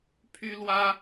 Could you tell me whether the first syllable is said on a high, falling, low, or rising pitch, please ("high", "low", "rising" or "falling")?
high